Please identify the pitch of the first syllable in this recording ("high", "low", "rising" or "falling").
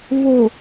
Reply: low